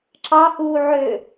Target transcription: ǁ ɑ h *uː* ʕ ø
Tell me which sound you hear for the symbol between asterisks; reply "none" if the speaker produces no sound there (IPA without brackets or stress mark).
uː